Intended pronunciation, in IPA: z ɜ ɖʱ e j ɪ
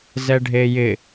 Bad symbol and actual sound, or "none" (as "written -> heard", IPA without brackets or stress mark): ɜ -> ɛ